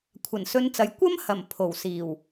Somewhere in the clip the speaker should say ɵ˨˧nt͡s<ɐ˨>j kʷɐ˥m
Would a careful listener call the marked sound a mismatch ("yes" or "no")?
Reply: no